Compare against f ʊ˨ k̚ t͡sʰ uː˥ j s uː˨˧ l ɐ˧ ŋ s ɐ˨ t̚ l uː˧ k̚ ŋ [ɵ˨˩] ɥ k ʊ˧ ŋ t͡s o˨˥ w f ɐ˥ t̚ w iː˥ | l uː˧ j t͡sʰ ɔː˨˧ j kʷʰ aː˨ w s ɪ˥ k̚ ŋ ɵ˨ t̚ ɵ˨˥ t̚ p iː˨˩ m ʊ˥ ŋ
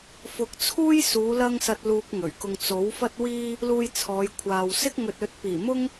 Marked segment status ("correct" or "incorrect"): correct